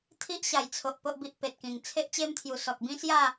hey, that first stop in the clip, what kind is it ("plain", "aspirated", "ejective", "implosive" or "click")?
aspirated